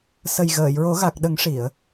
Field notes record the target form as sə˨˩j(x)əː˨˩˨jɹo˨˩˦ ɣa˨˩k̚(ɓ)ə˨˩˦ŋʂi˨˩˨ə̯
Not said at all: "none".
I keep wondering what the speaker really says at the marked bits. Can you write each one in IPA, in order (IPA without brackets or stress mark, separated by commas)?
ɣ, ɗ